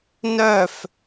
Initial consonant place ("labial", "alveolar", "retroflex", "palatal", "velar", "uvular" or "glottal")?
alveolar